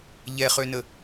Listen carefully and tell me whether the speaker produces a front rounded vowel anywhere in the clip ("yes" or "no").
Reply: yes